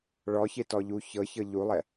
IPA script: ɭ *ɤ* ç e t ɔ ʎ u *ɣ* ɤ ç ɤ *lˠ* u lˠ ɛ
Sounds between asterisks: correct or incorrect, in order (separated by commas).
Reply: incorrect, incorrect, incorrect